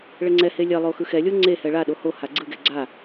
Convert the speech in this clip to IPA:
ɭɛŋ͡ǀɛhe lʲɛlˠo xɯxɛlʲo ŋ͡ǀehɛ ɭaɗo hoha ɡ͡ǀɯɡɛ ɡ͡ǀa

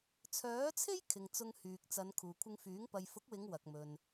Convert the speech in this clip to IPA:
t͡sʰœː˨˥t͡sʰe˥j kʰɪ˨ŋt͡sʊ˧ŋ hyː˨k̚t͡sɐ˨˧n kʰuː˨kʷʰɪ˧ŋfyː˨˥ŋ pɐ˨jfʊ˨˥k̚wɪ˨˧ŋ wɐ˨k̚mɵ˨n

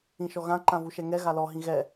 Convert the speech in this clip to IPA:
ĩʃɔɣã ǃãvuʃɛŋɛ ɣalɔ ɦĩɣɛ

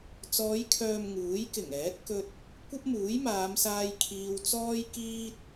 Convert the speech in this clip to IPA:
t͡sɔː˨˧jkʰœː˨m ŋuː˨˥jkɪ˨˩ŋɛː˨˥t̚ kɵ˧t̚ | kʷɐ˥p̚muː˨˥jmaː˨˧msaː˧j kʰiː˧wt͡sɔː˥j kiː˥t̚

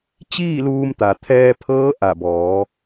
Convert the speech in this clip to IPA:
t͡ɕiː˥˨luː˧mt̪a˩t̪ʰɛː˧ pʰɤː˧˥ʔa˧˩bɔː˩˧

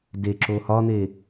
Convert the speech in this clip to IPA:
deǁo hɒn̪e

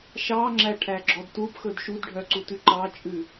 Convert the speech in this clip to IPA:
ʃɑŋ͡ǁæʈʰæɡ͡ǁɔd tupxɵd ʃudɖʱœǀutʉ ǃɑt͡ʃʼʉ

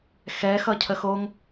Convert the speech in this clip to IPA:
xɛxʌ cʰəxoŋ

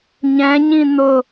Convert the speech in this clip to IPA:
ɲɛ̃ɲĩ n̪ʊ

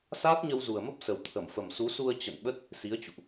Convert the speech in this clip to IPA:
saː˦˥t̚ɲə˧wzu˨˩ə̯mə˦˥p̚ sə˨˩wt̪ʰə˧˩mfə˨˩m su˨˦su˧ə̯ t͡ɕə̰˧˨nɓə˦˥t̚ | si˨˦ə̯t͡ɕṵ˧˨ʔ

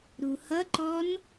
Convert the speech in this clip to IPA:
ɾuhʌǃɔn

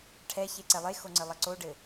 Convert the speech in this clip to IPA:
ʈʰɛçeǀɛ lˠexoŋ͡ǀɘlˠɐ ǀoɖɘ

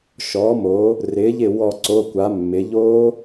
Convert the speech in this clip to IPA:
ʃɔː˩˧moː˩˧ | rɪː˩˧ʎɪ˧˩ wɔ˧˩ǀo˩˧˩kʷa˩˧ mːɪ˩˧ʎoː˦˥

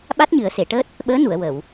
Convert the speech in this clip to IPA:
ɓa˦˥t̚ɲɨ˨˩˦ə̯se˨˩˨ʈəː˦˥t̚ | ɓəː˧˥nu˨˩˨ə̯ wə˨˩˨w

